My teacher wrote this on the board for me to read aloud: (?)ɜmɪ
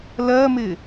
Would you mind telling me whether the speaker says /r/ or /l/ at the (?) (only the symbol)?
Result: l